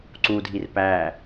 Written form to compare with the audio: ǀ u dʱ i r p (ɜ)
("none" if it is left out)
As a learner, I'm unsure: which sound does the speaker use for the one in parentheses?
æ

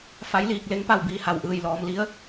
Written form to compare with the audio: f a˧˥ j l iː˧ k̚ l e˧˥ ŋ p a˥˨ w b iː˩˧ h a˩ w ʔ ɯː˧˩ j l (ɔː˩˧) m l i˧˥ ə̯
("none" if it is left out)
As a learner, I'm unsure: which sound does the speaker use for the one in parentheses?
ɔː˩˧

